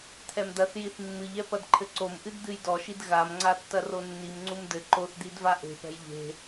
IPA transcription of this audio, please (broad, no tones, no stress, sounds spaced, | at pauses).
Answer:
t̪ʰ ɛ m d̪ ɐ θ j i θ mː ɨ ʎ ɛ p ɐ d ǃʰ ɘ ǀ o m ʔ ɨ d d̪ ɨ j d ɔ ʃ i d ɣ a m ŋ͡ǀ a tː ɐ r o nː i m ŋ͡ǀ u m d ɘ ǃ o θ d̪ i d v a ʔ e̤ p ɛ̤ j ʎ e̤